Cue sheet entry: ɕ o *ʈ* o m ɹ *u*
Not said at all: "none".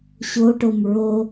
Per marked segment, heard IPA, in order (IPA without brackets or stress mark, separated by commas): ʈ, o